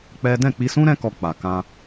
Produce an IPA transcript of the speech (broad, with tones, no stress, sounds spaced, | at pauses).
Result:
k͡p ɛ˦ d ɛ̃˦˨ k͡p i˧ s ũ˦ ɾ ɛ̃˦ k ɔ˧ k͡p a˨ k ã˧